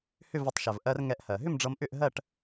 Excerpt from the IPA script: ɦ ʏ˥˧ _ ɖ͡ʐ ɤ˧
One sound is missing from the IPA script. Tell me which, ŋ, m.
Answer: m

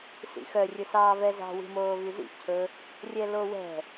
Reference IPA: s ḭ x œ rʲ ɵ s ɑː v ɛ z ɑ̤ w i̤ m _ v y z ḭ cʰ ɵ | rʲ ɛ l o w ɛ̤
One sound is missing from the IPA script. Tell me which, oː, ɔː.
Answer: oː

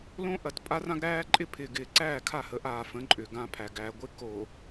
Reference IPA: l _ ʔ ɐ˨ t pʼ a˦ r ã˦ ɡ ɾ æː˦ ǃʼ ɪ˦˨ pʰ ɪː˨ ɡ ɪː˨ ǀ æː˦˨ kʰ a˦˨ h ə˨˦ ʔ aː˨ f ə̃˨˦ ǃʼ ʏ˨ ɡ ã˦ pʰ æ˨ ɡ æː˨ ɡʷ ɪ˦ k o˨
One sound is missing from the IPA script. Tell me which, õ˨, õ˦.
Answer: õ˦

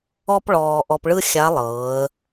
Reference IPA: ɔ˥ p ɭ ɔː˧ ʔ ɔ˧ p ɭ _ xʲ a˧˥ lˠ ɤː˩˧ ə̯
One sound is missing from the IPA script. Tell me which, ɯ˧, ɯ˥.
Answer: ɯ˥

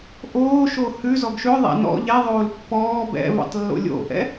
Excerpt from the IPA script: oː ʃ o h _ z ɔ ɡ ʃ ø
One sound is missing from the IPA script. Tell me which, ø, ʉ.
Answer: ʉ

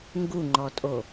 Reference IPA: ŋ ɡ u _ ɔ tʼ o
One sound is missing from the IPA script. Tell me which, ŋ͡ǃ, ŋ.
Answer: ŋ͡ǃ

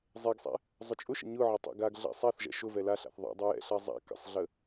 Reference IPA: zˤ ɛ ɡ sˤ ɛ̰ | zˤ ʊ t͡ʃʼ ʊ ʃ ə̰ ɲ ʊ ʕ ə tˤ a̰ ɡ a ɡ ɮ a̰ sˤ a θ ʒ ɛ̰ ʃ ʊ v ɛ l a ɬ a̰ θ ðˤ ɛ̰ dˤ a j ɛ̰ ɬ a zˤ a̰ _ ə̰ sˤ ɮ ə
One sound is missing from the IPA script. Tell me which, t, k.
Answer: k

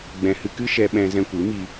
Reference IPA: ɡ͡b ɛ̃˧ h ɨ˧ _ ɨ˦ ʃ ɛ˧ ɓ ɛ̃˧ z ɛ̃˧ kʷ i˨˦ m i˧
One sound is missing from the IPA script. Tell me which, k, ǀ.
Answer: k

